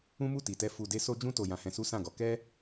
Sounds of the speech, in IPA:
ũ˦mu˦˨ti˨tɛ˧ fu˨de˧ so˧d͡ʒũ˧to˨ jã˧hɛ̃˧su˦ sã˦˨ɡɔ˨˦ kɛ˦

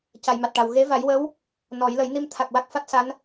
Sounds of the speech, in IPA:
ca˨˩˨jma˨˩t̚ʈa˨˩w ɣe˧˥va˨˩˦jwə˧˥w | nɔ˨˩˦j lə˨˩˦jni˧m t̪ʰa˨˩k̚ wa˦˥k̚fa˦˥t̚sa˧˥n

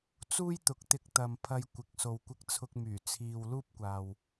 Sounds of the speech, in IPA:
t͡suː˥jt̪ʊ˨˥k̚t̪ɪ˧k̚ t̪ɐ˨mpʰɐ˧j kʷɪ˨˥k̚ so˨wkʷɪ˧k̚t͡sʰʊ˧k̚myː˨˩ t͡sʰiː˨w luː˥p̚kʷaː˨w

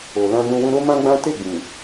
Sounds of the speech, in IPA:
o˨ lã˧nũ˧wũ˧ ɾo˦ mã˦ɡ͡bã˦ te˦˨ɡ͡bĩ˨

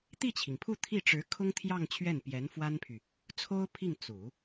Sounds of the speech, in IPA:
t̪i˥˩t͡ɕʰi˩ŋpʰu˥˧ t̪ʰi˥˩ʈ͡ʂɻ̩˧˥kʰʊ˥ŋt̪ʰjɑ˥˧ŋ t͡ɕʰɥɛ˥˩npjɛ˧˥nfwa˥npʰy˨ | t͡sʰo˥ʊ̯pʰi˥˩ŋ t͡su˨˩˦

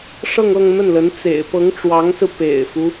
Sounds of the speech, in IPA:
ʂɤ˥˧ŋɤ˥˧ŋn̪ə˥˩nlə˧˥n t͡sḛ˨˩ɪ̯ pɤ˧˥ŋʈ͡ʂwɑ˧˥ŋsɹ̩˧ pḛ˨˩ɪ̯fu˦

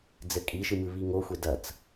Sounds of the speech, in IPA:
d͡zɘkʼiʃɨ mɨβiŋoxʷe dɐt͡s

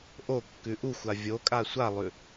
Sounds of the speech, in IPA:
ʔokːʉ ʔuxʷa vʲokʼa sʷalˠʉ

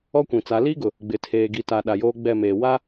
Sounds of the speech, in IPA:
ɔ˦kʷĩ˨t͡sa˨˦ liː˦ɡʊ˨ | ɡ͡bɪ˨ tʰeː˨ɡi˨ta˨ ɗa˨joː˦ɡ͡bɛ˦˨ meː˨ wa˦

